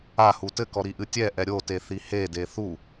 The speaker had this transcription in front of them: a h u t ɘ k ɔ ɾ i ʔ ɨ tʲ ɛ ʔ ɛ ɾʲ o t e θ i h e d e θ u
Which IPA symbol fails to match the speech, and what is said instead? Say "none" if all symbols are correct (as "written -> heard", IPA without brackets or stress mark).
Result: none